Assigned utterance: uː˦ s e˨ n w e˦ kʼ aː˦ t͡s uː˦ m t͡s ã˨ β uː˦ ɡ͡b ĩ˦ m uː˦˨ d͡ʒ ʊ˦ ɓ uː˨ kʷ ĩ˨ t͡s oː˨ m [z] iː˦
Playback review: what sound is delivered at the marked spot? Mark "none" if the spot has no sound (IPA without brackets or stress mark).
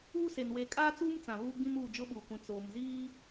z